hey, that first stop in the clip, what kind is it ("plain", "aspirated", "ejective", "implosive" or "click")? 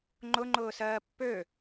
click